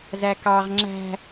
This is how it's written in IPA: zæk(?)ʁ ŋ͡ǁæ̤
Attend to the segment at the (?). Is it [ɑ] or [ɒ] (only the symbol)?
ɑ